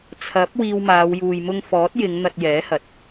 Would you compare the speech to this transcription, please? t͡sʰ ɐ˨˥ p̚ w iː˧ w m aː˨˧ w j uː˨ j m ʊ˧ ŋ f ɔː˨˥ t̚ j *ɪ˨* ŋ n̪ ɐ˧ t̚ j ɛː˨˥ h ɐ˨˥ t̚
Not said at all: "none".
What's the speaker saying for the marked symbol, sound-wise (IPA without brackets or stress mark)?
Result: ɪ˨˧